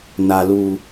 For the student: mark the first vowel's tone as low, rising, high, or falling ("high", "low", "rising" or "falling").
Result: high